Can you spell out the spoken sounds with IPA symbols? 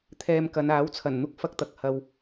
t̪ʰ ɛː˧ m k ɐ˨˧ n aː˨˥ w t͡sʰ ɐ˨˩ n n̪ ʊ˥ k̚ f ɐ˧ k̚ t̪ ɐ˨ k̚ h ɐ˧ w

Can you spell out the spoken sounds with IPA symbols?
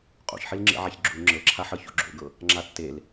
qʼ o̰ ç ħ i l ŋ͡ǁ ḛ ʕ a ç ɡ͡ǁ u ŋ͡ǁ ɤ ǁʰ a ħ ɤ ç o̰ ɡ͡ǁ o̰ ɡ ɤ | ŋ͡ǁ a tː e l

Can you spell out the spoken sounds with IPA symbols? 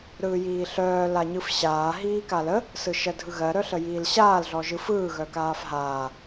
ɾ ɯː j iː ɬ œː l a ɲ ɯ f ɕ aː ɦ iː k a l ə | s ɯ ʃ ɜ dʱ ɯ ɣ ɜ ɾ œ ɬ ə j iː l ɕ aː l ɮ ɔ ʒ ɯ f ɯː ɣ œ k aː f ɦ aː

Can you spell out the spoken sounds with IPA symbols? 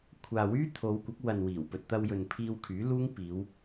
kʷʰ aː˨ w yː˥ t̪ʰ o˨˧ w kʷ ɐ˨˥ k̚ w ɐ˨ n w iː˨˩ w p ɵ˨ t̚ t̪ ɐ˧ w j ɵ˨ n pʰ iː˧ w kʰ yː˨˥ l uː˥ ŋ p iː˨˧ w

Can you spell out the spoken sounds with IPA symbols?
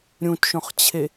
ɾʲ ũ t ʃ õ χ t͡ɕʰ e

